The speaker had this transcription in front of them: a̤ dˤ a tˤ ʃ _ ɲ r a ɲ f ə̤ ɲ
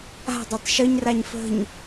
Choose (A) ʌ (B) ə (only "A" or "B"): B